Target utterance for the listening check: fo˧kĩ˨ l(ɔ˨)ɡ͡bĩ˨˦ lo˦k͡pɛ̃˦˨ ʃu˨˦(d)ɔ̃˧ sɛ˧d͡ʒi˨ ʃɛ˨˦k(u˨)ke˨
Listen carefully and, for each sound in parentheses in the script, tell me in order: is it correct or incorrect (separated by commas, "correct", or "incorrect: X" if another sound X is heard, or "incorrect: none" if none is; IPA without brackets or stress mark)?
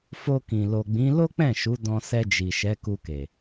incorrect: o˨, correct, incorrect: u˧